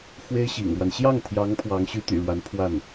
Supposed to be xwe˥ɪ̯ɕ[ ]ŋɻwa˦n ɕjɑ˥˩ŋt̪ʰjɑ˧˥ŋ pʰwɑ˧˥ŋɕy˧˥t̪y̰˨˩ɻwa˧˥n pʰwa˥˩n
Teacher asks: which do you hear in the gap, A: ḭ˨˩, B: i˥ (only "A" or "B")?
A